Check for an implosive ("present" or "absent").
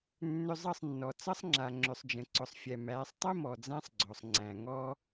absent